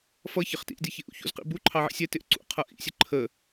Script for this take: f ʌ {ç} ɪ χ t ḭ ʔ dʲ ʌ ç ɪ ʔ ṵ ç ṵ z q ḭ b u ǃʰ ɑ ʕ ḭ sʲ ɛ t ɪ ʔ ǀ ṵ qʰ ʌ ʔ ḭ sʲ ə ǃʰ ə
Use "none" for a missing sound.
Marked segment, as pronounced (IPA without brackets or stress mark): ç